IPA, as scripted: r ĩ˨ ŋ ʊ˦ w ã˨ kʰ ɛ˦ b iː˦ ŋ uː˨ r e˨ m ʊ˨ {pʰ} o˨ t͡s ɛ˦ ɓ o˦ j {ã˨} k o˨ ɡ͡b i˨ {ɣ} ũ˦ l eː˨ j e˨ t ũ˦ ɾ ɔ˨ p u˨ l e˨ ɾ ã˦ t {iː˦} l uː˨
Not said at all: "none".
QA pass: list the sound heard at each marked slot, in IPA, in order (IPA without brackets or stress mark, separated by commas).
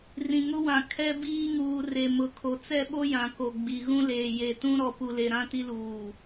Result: kʰ, ã˨, ɣ, i˦